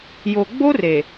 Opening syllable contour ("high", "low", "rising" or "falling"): low